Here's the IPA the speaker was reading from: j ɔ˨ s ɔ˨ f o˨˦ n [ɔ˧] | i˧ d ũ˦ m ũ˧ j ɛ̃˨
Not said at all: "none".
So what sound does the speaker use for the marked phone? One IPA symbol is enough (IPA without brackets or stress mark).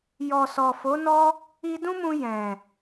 ɔ˦